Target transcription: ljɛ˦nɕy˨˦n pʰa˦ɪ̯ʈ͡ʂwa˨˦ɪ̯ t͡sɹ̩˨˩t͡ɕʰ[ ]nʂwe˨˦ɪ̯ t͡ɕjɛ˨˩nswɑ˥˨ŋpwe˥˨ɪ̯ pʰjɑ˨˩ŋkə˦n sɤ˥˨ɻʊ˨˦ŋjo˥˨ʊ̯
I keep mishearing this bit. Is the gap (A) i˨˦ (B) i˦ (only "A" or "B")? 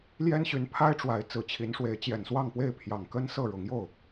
A